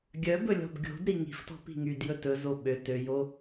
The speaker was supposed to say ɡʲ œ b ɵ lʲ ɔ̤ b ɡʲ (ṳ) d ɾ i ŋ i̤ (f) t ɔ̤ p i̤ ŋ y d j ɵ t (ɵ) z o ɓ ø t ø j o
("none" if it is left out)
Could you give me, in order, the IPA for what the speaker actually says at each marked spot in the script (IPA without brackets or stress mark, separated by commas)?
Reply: o̤, f, ɵ